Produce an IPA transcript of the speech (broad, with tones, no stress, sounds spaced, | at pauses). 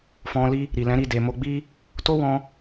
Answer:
f ɔ̃˧ l i˦ | ɾ i˨ l ɛ̃˨˦ ɾ i˦˨ d e˨ m o˧ ɡ͡b i˦ | t o˦ w ɔ̃˧